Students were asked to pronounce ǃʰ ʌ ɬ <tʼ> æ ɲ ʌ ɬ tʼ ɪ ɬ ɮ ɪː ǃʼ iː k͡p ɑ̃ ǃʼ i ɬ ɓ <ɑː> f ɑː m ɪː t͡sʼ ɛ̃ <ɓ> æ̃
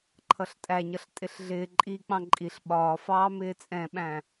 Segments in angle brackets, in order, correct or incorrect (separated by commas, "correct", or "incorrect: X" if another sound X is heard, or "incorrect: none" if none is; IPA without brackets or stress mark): correct, incorrect: ɒː, correct